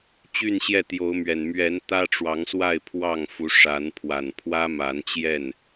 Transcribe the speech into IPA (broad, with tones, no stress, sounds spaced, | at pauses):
t͡ɕ y˥˨ n ɕ j ɛ˥˨ t̪ j o˨˦ ʊ̯ m ɥ ɛ˨˩ n m ɥ ɛ˨˦ n t̪ ä˦ ʈ͡ʂ w ɑ˨˦ ŋ s w a˥˨ ɪ̯ pʰ w ɑ˥˨ ŋ f u˨˦ ʂ a˨˦ n pʰ w a˨˩ n pʰ w ä˦ m a˨˦ n t͡ɕ j ɛ˥˨ n